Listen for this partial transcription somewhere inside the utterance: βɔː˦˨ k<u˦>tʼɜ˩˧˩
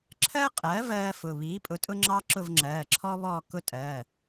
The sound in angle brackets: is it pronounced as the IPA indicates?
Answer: no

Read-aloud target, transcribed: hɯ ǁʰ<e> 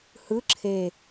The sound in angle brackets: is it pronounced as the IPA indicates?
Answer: yes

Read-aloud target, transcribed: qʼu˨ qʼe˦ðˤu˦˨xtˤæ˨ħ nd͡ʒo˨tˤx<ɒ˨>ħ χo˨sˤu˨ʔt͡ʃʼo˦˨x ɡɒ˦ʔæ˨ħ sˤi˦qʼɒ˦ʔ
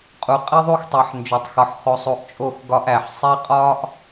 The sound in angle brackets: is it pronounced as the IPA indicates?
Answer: yes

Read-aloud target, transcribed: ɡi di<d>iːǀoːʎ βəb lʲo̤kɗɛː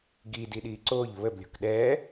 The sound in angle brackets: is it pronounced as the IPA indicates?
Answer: no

